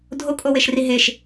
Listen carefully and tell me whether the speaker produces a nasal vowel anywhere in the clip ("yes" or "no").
no